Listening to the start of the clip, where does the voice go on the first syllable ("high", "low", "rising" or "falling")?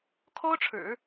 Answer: high